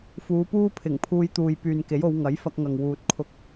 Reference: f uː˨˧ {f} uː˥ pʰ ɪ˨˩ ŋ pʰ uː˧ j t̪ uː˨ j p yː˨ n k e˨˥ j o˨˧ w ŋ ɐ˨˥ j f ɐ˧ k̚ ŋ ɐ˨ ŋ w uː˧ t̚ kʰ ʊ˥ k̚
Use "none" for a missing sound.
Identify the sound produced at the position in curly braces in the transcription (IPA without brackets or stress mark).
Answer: p